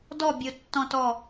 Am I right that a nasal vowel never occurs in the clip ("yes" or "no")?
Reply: no